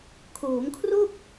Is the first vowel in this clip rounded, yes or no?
yes